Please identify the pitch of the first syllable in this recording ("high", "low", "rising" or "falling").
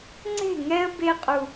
falling